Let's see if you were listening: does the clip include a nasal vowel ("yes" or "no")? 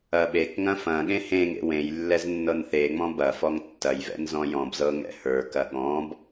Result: yes